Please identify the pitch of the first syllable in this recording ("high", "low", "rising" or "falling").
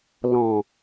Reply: low